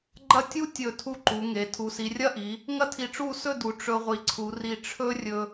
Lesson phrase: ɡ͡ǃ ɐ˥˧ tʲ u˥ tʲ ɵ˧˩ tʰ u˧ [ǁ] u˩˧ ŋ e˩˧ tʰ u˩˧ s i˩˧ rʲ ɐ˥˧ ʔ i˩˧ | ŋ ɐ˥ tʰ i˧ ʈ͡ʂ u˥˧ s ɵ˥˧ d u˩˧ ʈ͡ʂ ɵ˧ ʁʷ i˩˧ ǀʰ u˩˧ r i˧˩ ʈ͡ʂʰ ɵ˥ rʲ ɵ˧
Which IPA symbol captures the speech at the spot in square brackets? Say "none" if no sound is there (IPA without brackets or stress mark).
ǃ